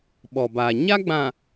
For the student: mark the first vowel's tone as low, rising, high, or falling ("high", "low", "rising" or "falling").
low